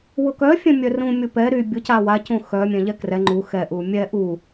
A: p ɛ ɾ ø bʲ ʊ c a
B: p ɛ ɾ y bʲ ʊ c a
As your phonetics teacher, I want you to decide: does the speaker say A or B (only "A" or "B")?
B